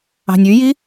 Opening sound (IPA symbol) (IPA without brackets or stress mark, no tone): ɑ̤